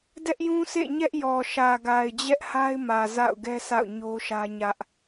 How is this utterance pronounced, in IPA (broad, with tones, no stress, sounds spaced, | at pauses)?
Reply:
d ɛ˦ ʔ j ũ˦ s ḛ˦˨ ɲ ɛ˦ ʔ j ɔ˨ ʃ ä˨ ɡ a˨ ɪ̯ d͡ʑ ɛ˦ ʔ h a˦ ɪ̯ m ä˨ z a̰˦˨ ʊ̯ ɡ ɛ˦ s a̰˦˨ ʊ̯ ɲ o˦ ʃ ä˦ ɲ ä˦ ʔ